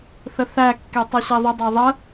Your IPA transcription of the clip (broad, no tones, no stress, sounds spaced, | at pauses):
θ ə θ æ kː e tˤ œ ɕ e ðˤ ʏ dˤ ɑ ðˤ ə